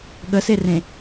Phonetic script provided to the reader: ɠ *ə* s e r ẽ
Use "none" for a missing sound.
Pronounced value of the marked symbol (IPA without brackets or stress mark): ə